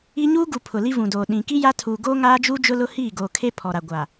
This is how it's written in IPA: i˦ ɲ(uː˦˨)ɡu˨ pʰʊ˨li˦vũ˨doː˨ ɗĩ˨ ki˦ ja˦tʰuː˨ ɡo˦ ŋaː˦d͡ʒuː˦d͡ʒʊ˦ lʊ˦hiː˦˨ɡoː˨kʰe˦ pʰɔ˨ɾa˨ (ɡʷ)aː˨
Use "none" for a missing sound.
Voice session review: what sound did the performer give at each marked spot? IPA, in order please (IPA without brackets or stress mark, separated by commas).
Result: uː˦, ɡʷ